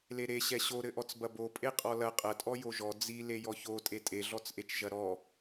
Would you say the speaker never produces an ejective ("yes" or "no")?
no